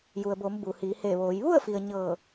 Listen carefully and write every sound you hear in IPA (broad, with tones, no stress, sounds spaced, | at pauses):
j u˩ ə̯ b oː˩˧ m b u˩ h iː˩˧ h eː˧˩ ʋ oː˩˧ j ʋ u˥˨ ə̯ f i˩ ə̯ ɲ ɤː˧˩